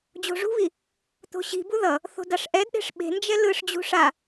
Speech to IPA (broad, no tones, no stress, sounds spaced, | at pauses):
d͡ʑ o̤ ʐ ṳ β i | t̪ o̤ ɕ i̤ b u ð ʌ | θ o̤ d a ʂ ʔ ɛ d ɗ e̤ ʂ ɓ e̤ n d͡ʒ ɛ l ɯ ʂ d͡ʑ ṳ ʂ a